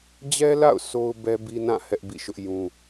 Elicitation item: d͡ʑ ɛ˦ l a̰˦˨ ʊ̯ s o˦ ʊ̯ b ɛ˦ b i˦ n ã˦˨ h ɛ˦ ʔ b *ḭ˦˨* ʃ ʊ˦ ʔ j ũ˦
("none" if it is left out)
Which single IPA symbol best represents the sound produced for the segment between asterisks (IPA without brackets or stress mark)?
ḭ˦˨